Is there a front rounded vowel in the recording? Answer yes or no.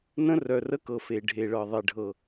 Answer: yes